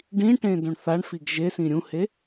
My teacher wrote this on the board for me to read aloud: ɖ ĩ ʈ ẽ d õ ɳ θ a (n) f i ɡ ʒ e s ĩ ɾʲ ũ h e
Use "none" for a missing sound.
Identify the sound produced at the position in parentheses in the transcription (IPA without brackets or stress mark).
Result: ɳ